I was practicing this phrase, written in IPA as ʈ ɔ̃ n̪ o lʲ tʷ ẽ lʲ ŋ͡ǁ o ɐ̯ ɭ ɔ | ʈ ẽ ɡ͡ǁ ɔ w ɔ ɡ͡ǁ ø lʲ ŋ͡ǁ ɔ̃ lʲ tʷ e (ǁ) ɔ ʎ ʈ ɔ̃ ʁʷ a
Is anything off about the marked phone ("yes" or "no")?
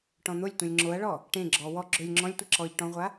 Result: no